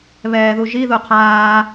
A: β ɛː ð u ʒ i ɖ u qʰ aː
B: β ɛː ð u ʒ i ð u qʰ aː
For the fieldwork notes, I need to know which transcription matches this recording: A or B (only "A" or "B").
B